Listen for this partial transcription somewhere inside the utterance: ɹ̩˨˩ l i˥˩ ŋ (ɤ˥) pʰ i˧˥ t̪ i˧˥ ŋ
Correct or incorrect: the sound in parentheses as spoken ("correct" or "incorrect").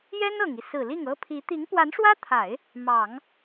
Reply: correct